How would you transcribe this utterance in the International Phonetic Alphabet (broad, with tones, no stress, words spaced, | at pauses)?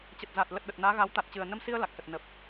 t͡ɕə˨˩t̚za˨˩t̚ lə˨˩t̚ɗə˨˩t̚ naː˨˦ɣa˨˦w t̪a˨˩t̚t͡ɕɨ˨˩ə̯nə˧msi˧ə̯ la˨˩k̚sə˨˩t̚ nə˨˩p̚